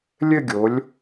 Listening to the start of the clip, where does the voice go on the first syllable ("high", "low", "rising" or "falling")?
falling